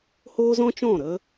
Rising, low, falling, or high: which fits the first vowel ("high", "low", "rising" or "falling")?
high